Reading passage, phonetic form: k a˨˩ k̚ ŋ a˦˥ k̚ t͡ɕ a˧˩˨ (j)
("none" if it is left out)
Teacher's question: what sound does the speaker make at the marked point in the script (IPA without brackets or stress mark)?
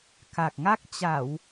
w